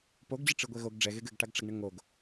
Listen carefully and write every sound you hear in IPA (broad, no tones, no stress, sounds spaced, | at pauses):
p o ɡ d͡ʑ ɨ ʈ͡ʂ ɨ ɡʷ ɛ ɣ o ɡ ɖ͡ʐ ɛ ɣ e ɡ ɘ ɡ ʈ a ɡ ʈ͡ʂ ɐ ɡ ɳ ɘ ŋ o ɡ